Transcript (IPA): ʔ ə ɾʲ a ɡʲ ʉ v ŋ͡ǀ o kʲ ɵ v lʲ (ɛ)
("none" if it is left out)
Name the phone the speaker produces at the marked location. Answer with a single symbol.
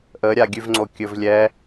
ɛ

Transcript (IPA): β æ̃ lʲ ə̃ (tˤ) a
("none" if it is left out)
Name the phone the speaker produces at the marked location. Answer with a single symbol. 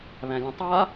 tˤ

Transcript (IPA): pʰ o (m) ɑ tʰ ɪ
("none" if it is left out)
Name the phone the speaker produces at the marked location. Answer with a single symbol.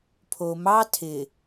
m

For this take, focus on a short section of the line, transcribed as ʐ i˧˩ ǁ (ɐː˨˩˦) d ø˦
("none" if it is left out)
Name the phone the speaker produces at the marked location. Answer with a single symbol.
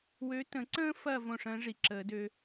əː˨˩˦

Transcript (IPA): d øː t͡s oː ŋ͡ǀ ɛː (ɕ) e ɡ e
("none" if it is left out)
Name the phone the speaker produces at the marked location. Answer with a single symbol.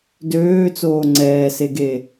s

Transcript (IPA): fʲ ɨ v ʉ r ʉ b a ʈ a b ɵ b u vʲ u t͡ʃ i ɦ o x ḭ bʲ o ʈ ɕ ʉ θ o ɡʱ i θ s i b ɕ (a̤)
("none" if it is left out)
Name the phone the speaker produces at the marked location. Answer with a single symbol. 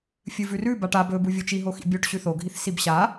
a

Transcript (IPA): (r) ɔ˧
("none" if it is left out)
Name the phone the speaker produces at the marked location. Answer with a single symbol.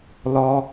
l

